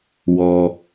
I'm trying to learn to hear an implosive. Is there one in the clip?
no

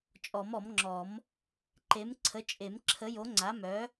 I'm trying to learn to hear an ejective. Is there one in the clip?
yes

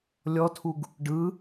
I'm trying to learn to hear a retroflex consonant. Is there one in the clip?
yes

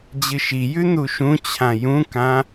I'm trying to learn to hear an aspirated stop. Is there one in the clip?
yes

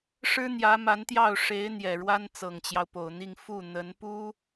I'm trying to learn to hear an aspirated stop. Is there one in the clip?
no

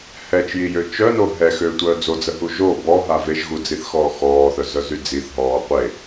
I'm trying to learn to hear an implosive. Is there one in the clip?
no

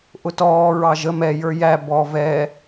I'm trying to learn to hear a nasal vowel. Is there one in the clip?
no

